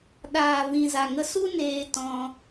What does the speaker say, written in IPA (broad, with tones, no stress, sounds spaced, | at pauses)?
ɗ aː˨ v ĩ˨ z a˨ ŋ ə˧ s u˦ n eː˧ t ɔ̃˧